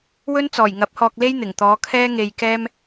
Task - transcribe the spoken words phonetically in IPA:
w ɵ˥ n t͡s ɔː˨˩ j ŋ ɐ˨˥ p̚ h ɔː˧ k̚ l e˥ j n̪ ɪ˨˩ ŋ t̪ ɔː˨˧ kʰ ɛː˥ ŋ e˧ j k ɛː˥ m

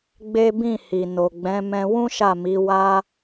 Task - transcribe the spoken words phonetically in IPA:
ɡ͡b e˦ b ĩ˦˨ h i˨ n o˨ ɡ͡b ɛ̃˨˦ m ɛ̃˧ w ũ˦ ʃ a˦˨ m i˨˦ w a˧

